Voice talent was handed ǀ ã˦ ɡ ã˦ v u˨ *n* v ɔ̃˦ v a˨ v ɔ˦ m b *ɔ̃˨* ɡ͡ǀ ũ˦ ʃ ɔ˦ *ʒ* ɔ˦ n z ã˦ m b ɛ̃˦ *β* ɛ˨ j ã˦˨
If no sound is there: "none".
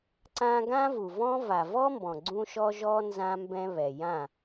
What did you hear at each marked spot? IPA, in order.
none, ɔ̃˨, ʒ, β

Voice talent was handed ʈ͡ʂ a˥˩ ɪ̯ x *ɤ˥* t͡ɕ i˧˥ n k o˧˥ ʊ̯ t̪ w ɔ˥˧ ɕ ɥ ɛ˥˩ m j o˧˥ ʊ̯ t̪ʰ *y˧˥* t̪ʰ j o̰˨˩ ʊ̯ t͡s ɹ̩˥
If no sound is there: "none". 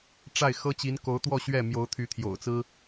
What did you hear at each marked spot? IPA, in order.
ɤ˥, y˧˥

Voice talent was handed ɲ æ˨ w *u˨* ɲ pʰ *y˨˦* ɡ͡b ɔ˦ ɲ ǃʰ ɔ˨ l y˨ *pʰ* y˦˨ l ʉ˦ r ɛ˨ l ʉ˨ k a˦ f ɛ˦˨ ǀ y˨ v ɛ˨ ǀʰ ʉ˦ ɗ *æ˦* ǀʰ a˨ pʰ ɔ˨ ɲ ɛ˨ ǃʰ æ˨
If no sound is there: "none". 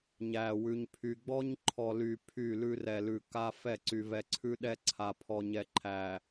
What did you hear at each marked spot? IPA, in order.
ʉ˨, y˨, pʰ, ɛ˦

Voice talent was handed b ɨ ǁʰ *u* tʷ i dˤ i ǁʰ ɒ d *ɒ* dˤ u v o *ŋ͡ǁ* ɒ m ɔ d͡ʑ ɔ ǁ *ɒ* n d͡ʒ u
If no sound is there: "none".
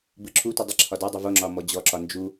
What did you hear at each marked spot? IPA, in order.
u, ɒ, ŋ͡ǁ, ɒ

